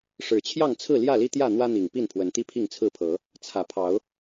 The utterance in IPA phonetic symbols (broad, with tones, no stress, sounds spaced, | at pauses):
ʂ ɻ̩˨˩ t͡ɕʰ j ɑ˥˨ ŋ t͡sʰ ɹ̩˥˨ l j ä˥˨ l i˦ t̪ j ä˥˨ n̪ w ä˦ n̪ i˨˩ ŋ p i˥˨ n pʰ w ə˨˦ n t̪ i˦ pʰ i˥˨ ŋ t͡sʰ ɹ̩˥˨ pʰ ɤ˨˦ | t͡sʰ ä˨˩ pʰ ɑ˨˦ ʊ̯